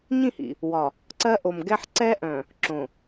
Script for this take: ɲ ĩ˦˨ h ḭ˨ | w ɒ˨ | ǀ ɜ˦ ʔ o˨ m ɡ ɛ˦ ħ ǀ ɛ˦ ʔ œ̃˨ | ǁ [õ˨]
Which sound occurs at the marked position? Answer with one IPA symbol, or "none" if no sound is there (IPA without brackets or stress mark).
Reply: õ˨